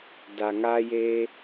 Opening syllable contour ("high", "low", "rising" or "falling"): low